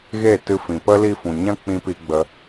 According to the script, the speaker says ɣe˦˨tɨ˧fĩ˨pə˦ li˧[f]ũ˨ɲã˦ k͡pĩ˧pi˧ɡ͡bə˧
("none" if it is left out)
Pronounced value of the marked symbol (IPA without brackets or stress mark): f